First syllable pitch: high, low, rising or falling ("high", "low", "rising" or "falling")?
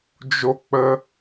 high